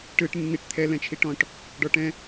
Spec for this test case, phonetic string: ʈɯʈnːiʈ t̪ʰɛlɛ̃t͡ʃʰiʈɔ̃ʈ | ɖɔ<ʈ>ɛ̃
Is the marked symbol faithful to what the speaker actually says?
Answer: yes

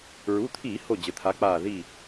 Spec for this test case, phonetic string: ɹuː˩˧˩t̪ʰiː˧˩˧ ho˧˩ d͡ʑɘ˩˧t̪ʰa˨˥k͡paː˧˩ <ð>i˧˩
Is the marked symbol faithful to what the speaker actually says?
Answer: yes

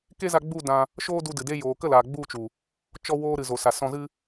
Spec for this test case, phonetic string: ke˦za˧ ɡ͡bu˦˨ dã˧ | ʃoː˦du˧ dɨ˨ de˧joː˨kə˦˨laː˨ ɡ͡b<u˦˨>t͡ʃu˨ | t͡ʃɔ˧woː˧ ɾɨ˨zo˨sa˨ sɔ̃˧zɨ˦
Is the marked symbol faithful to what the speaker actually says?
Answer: yes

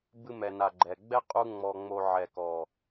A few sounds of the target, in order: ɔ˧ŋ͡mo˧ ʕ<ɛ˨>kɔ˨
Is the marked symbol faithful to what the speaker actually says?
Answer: yes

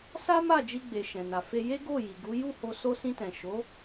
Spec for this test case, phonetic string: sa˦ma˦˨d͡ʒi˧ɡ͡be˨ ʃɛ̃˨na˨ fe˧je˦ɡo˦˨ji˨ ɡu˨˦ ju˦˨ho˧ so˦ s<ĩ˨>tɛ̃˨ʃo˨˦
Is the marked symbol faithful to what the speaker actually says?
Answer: no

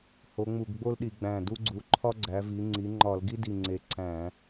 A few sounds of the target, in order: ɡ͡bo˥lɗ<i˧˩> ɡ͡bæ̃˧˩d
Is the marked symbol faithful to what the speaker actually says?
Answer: no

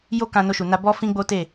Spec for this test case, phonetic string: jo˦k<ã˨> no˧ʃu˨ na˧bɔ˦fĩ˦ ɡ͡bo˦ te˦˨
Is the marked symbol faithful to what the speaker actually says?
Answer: no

